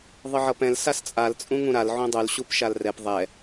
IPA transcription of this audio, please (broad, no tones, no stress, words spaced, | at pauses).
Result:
ðˤɯʕʌpɛ̃l sast͡sʼal t͡sʼũŋũɾal ʕũdˤul ɕupʃalrɛp ðˤɛ